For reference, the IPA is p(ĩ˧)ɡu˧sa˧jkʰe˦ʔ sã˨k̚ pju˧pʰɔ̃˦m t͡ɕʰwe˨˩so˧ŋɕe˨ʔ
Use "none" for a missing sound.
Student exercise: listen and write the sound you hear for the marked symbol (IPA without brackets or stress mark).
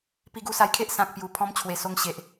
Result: i˧